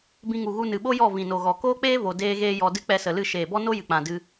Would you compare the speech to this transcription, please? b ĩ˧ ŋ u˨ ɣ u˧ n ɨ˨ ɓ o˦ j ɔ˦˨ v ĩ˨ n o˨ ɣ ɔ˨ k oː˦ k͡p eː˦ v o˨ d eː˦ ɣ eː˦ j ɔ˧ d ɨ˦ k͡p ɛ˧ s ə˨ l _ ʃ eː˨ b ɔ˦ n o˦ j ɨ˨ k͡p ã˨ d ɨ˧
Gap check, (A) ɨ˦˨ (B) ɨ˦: A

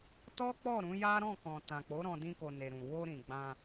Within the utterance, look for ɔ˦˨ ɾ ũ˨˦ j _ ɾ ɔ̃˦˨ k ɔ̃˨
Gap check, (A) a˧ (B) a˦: B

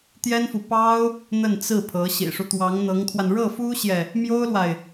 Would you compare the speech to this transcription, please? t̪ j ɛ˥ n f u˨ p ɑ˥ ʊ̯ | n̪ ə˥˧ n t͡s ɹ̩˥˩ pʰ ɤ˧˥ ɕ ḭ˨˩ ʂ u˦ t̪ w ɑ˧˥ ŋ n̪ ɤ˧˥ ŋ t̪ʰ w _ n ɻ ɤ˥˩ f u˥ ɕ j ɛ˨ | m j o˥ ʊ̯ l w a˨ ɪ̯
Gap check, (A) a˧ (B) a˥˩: A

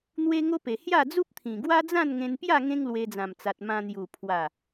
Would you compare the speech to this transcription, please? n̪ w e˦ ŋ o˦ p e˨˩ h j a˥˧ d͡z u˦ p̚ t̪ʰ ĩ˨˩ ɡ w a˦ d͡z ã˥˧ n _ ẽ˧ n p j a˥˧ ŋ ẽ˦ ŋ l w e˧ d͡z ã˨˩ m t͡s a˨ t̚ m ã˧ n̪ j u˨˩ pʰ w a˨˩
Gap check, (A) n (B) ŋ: B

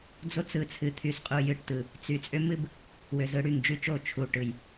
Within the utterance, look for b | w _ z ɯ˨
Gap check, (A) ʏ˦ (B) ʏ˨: B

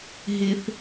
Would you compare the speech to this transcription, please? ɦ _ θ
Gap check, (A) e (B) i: A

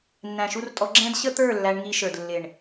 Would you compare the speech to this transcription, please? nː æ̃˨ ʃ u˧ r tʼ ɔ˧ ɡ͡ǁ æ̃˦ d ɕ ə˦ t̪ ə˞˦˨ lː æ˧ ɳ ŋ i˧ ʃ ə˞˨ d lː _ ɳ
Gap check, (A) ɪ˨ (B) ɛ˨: A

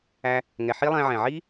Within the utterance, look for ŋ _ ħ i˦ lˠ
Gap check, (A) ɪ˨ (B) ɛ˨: B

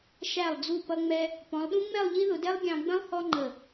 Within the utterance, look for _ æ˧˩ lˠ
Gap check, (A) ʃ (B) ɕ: A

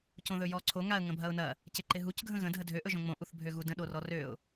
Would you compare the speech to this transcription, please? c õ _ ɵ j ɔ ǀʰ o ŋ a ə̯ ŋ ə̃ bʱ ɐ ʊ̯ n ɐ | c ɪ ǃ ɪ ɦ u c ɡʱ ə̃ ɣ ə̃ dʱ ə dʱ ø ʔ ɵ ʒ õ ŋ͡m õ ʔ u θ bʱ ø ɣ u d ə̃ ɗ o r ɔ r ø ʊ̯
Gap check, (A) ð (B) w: A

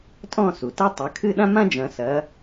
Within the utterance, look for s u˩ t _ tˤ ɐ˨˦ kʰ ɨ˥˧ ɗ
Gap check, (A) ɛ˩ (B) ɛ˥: B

